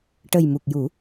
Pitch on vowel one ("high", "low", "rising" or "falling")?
low